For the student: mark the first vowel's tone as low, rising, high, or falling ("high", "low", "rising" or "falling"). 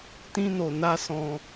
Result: high